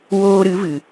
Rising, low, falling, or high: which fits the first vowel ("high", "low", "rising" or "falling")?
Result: high